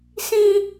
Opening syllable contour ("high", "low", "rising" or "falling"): high